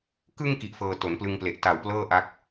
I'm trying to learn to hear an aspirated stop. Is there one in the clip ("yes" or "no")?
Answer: no